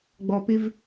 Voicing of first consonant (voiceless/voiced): voiced